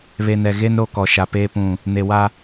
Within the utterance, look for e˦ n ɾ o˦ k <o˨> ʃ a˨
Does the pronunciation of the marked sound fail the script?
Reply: yes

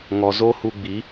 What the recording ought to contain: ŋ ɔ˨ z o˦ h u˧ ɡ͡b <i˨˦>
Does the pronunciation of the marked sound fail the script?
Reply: no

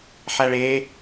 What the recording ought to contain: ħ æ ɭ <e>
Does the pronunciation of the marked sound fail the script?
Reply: no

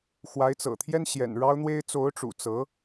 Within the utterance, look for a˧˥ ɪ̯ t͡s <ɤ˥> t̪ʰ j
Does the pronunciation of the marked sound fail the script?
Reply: yes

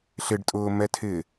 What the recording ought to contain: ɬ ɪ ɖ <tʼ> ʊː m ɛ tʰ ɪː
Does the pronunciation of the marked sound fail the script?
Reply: no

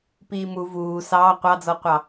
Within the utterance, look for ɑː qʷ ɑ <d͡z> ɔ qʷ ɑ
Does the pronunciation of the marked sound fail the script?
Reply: no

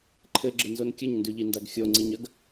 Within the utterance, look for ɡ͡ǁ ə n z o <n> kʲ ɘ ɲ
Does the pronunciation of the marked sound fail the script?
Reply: no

